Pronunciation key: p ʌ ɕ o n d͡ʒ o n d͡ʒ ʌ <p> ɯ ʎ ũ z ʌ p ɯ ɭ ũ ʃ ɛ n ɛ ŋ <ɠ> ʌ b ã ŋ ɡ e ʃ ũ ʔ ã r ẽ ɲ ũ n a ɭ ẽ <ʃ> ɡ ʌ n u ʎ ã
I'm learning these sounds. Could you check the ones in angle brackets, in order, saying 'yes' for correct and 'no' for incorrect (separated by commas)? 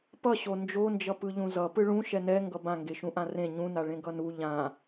yes, no, no